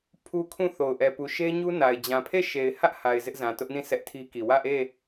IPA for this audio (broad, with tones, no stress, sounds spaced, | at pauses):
pʰ u˦ kʰ ũ˦˨ θ o˨ ʊ̯ ʔ ɛ˨ p u˨ ʃ e˦ ɲ u˦ n a˨ ɪ̯ d͡ʑ ã˨ pʰ e˦˨ ʃ e˨ ɪ̯ h ä˦ ʔ h a˨ ɪ̯ z ɪ˦ ʔ z ã˨ t ʊ˦ ʔ n ĩ˦˨ s ɛ˦ ʔ tʰ i˦ k i˨ w ä˦˨ ʔ e˦˨